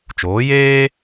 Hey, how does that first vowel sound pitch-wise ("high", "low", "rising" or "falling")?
rising